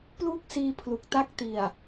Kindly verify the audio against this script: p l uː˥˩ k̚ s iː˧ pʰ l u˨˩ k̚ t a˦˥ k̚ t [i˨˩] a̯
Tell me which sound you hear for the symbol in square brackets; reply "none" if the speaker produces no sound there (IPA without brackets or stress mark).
i˨˩